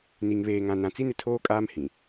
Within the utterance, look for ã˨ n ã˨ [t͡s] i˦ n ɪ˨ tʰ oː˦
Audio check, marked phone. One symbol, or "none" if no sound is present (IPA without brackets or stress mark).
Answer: t͡s